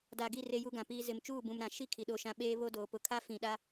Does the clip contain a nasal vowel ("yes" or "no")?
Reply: yes